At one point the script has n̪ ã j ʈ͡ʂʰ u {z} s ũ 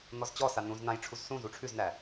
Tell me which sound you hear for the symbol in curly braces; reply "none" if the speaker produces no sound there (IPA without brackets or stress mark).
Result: z